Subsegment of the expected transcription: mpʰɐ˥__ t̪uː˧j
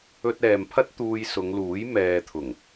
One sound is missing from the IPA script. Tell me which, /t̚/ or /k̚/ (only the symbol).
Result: t̚